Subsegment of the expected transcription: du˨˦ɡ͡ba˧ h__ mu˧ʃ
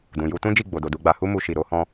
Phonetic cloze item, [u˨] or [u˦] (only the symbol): u˦